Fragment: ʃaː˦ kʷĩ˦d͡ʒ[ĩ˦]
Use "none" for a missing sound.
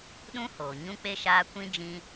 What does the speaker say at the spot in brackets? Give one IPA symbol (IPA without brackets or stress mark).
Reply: ĩ˦